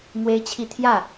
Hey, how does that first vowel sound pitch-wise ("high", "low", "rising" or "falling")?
high